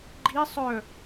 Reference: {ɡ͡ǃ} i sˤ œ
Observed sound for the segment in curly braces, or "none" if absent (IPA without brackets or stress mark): ɡ͡ǃ